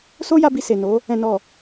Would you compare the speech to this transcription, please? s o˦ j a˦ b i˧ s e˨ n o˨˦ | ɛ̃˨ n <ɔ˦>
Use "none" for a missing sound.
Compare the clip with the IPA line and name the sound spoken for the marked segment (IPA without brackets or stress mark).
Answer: ɔ˨